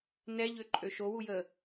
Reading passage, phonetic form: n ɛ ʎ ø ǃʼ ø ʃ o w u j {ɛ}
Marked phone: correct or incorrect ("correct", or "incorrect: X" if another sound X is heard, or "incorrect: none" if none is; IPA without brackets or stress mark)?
incorrect: ə